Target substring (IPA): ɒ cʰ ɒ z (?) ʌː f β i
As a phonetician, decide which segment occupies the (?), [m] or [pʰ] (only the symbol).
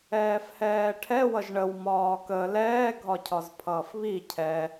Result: pʰ